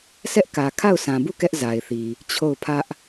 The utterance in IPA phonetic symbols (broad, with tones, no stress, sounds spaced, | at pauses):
s ɛ˦ ʔ k ä˨ kʰ a˦˨ ʊ̯ sʰ ã˨ b u˦˨ k ɛ˦ ʔ z a˨ ɪ̯ θ i˨ | t͡ɕʰ o˦˨ ʊ̯ pʰ ä˦ ʔ